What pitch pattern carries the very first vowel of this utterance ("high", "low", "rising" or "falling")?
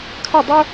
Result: falling